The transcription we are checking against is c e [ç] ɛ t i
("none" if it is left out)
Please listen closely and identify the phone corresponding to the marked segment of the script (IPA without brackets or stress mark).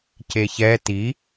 ç